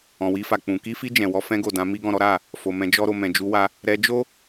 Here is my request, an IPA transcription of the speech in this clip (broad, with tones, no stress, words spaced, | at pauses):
ɔ̃˨wi˧fa˨k͡pũ˨ ki˧fi˧ d͡ʒɛ̃˨wɔ˧fɛ̃˦ ɡo˦˨dã˧mi˦ ɡɔ̃˦˨ɾɔ˨˦ɾa˦˨ | fo˧mɛ̃˧d͡ʒɔ˦ɾo˧ mɛ̃˨d͡ʒu˧wa˧ | ɾɛ˧d͡ʒo˦